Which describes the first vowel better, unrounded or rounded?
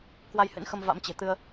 unrounded